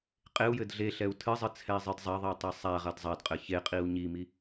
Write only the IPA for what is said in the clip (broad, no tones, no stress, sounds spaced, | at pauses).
qʼ e u̯ j ɘ d ɮ e ɬ ɛ u̯ tʰ ɨ zˤ ɨ t͡sʰ ɛ i̯ zˤ ɨ d zˤ ɐ ðˤ i u̯ tˤ i sˤ a ʁ ɐ d zˤ ɐ d qʼ ɘ ç e qʼ i u̯ ɲ i m i